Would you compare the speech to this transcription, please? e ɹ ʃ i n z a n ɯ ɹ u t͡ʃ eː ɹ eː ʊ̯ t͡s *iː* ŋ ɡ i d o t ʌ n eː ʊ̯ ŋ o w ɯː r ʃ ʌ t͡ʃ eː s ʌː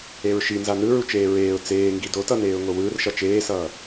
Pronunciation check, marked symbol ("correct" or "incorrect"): incorrect